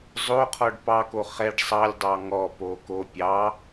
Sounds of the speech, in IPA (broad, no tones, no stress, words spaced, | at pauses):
zˤoqʰɔɖ pɑko χɛɖ sˤɑlʲdˤɑ ŋɔpo ko pʲɑ